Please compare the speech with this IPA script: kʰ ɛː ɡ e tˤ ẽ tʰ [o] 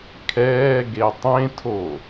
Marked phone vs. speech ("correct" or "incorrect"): correct